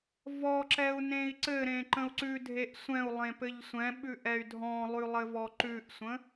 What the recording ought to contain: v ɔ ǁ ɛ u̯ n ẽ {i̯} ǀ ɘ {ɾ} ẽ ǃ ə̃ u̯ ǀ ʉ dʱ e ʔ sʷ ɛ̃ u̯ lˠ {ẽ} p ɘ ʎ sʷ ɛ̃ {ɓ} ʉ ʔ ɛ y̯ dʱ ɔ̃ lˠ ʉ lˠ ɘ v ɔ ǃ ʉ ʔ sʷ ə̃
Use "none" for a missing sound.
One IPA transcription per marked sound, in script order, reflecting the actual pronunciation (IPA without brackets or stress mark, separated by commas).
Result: i̯, ɾ, ẽ, ɓ